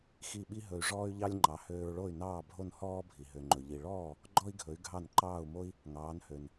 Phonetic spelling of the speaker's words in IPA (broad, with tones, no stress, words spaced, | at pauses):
xi˥˩ɓi˥ɦɵ˧y̯ ʐɔː˥y̯ʎɑ˥lʲŋ͡ǃɑ˩˥ høː˧ɹɭo˥˩y̯nɑː˥˩bʱo˥˩n hɔː˥bʱi˩ ɦø˩ŋ͡ǃɵ˩ʎi˩ɭɔː˥˩ | ɡ͡ǃɔ˥i̯ɡʱɵ˩˥y̯ ɡʱɑ˥˩nǃɑː˥˩u̯mo˥i̯ | ŋɑː˩˥nhø˩n